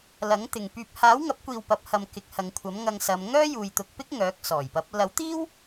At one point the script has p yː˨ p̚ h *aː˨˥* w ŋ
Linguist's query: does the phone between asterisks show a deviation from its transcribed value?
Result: no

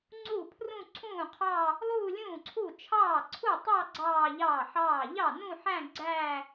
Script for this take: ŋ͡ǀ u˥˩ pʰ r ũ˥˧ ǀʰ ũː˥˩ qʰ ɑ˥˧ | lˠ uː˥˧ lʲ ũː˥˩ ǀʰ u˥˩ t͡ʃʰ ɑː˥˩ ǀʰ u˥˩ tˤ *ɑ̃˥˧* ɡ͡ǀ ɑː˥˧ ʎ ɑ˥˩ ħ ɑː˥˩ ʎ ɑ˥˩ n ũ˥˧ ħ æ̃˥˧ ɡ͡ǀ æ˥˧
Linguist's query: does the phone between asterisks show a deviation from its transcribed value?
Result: yes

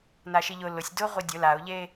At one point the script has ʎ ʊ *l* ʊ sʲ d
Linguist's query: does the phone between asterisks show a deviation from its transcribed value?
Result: no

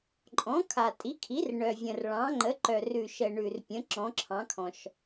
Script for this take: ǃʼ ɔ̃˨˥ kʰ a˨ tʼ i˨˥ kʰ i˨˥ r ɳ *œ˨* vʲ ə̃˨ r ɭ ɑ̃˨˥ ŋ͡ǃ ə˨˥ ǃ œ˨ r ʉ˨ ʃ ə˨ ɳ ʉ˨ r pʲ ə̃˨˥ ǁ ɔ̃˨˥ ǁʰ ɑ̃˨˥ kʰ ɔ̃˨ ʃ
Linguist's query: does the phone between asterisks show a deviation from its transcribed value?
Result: no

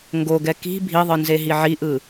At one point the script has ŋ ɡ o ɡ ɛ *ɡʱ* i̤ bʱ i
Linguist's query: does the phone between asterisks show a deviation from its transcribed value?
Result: yes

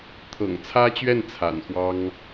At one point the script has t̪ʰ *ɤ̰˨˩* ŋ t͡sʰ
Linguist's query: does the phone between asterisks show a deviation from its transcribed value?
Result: no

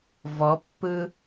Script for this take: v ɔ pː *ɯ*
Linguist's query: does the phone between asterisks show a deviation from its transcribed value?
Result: no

